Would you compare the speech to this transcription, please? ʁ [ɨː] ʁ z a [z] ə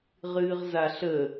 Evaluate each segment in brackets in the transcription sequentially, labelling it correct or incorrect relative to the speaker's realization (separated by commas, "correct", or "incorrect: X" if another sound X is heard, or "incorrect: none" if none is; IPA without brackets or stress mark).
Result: correct, incorrect: ɬ